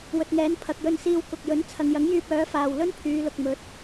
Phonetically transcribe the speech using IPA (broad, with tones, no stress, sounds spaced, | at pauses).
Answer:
w ɵ˨ t̚ ŋ ɛː˨˥ n pʰ ɐ˨ k̚ j ɵ˧ n s iː˧ w k ʊ˨ k̚ j ɵ˨˥ n t͡sʰ ɐ˨ ŋ j ɐ˨˥ ŋ j yː˧ p̚ œː˨˥ f aː˨ w l ɵ˥ n pʰ yː˨˧ l ʊ˨ k̚ m ɵ˨˥ t̚